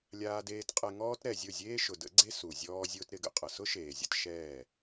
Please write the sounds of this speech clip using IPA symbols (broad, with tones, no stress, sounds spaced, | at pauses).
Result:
lʲ aː˧ d eː˧ t qʼ ɛ˧ ŋ ɔː˦ t ɾ ɛ˨ zʲ ʊ˦˨ zʲ eː˦ ʃ ʊ˨ d ə̰˨˦ ɡ͡ǀ e˦ s u˨ zʲ ɔː˦ zʲ ʊː˦ t ɾ ɪ˨˦ ɡ ə̰˨ qʼ ə˨ s ʊ˦ ʃ eː˨ zʲ ə̰˧ t ʃ ɛː˦˨